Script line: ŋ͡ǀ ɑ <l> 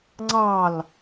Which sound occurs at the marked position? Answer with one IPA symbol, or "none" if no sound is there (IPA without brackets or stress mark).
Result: l